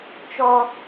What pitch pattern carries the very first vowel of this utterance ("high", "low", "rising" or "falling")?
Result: high